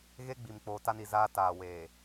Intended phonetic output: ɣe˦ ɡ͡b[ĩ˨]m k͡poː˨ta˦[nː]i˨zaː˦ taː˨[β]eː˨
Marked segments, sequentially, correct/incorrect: incorrect: i˨, incorrect: n, incorrect: w

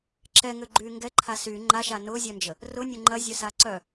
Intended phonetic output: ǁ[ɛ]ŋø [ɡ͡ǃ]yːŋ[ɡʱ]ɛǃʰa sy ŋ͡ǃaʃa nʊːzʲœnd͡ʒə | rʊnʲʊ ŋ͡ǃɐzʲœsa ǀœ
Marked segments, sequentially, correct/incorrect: correct, correct, incorrect: ɡ

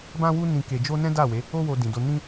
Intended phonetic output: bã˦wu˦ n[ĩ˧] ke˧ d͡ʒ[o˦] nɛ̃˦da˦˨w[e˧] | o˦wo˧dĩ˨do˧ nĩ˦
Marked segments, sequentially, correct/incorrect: correct, correct, incorrect: e˨˦

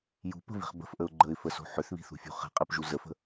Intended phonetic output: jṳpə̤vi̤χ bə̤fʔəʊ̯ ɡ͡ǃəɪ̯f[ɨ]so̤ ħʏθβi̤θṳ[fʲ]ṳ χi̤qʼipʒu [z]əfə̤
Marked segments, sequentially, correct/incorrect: incorrect: ə, correct, correct

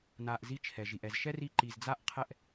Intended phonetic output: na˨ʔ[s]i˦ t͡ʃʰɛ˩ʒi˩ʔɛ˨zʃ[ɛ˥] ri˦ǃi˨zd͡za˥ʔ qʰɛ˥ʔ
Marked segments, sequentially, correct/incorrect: incorrect: z, correct

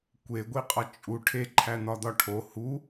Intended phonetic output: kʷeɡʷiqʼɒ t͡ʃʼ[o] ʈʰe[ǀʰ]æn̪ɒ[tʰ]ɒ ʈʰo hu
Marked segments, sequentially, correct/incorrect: incorrect: u, incorrect: ǃʰ, incorrect: d̪

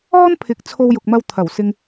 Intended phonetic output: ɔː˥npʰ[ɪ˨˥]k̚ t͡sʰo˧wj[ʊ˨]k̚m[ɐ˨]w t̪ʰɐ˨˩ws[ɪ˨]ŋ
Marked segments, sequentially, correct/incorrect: correct, correct, incorrect: ɐ˧, incorrect: ɪ˧

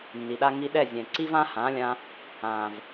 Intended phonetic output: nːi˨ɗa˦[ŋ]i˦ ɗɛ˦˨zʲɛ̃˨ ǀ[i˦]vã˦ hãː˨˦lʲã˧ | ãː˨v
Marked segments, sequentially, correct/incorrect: correct, correct

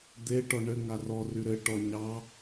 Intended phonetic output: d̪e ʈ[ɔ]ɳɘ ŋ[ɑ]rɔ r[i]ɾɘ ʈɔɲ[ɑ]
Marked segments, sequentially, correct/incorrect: correct, incorrect: a, incorrect: y, correct

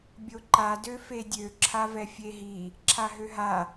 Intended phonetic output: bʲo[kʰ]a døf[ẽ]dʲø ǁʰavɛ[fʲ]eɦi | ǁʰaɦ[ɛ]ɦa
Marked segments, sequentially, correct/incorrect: incorrect: ǃ, incorrect: e, correct, incorrect: ø

